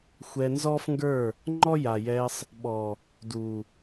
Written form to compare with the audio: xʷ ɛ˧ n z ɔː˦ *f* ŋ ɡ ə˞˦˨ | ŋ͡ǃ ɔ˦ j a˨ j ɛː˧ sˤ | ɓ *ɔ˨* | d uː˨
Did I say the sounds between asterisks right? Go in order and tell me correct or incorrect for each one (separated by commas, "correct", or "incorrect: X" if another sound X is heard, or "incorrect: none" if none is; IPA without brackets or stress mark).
correct, correct